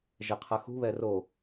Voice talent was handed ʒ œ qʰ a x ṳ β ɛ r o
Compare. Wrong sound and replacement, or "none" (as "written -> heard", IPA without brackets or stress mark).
œ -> ɛ